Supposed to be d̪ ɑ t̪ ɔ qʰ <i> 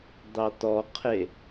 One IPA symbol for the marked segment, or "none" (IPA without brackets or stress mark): e